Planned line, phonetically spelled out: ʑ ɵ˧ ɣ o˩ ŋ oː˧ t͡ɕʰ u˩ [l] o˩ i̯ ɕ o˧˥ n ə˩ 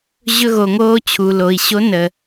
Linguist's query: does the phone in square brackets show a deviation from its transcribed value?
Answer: no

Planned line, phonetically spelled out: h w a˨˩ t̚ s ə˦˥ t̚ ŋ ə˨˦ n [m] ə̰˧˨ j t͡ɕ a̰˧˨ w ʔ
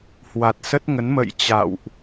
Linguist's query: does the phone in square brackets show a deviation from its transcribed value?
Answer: no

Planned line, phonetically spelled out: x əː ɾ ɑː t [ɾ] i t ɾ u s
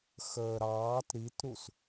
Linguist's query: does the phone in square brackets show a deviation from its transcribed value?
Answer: no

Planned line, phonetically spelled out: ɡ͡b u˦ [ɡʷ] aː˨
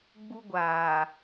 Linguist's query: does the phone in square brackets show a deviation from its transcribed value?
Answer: no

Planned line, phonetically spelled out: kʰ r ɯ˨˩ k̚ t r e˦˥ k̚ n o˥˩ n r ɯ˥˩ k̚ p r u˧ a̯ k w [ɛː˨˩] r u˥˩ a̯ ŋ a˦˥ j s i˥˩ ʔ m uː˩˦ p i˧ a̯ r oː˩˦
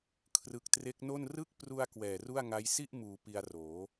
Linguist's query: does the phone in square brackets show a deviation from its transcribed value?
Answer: no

